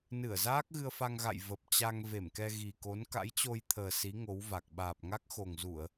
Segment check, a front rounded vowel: absent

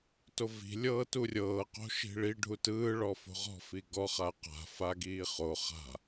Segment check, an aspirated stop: absent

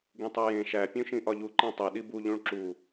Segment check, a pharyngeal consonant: absent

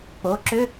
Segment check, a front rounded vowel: present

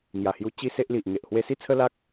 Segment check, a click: absent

